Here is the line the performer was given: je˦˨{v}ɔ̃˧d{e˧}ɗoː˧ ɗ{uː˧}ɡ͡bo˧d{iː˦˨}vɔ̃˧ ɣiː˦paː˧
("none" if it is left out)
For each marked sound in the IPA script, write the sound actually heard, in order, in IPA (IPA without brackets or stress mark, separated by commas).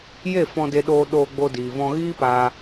f, e˧, oː˧, iː˨